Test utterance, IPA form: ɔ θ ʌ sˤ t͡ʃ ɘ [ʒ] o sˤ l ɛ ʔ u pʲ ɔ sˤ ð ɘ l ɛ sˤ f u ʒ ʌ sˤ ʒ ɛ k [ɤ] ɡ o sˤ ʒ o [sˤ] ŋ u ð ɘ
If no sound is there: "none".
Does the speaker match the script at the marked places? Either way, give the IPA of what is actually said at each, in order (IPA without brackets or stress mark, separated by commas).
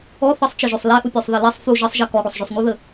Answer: ʒ, ɔ, sˤ